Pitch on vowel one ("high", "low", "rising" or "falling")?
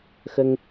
high